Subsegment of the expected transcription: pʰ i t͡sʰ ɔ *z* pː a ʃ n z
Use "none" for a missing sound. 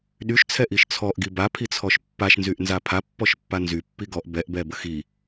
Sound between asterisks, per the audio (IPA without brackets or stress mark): ʃ